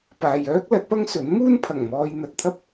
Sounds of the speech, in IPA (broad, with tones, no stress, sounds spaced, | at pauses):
p aː˨ j œː˥ k̚ l ɐ˨˥ t̚ p ɐ˥ ŋ s ɵ˨˥ n m uː˥ n pʰ ɐ˨˩ ŋ m ɔː˧ j n̪ ɐ˧ t̚ t̪ʰ ɐ˥ p̚